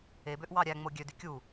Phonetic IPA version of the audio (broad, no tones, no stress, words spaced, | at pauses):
ebøʔ wɑɾʲæŋ͡mo ɡʲødy kʲu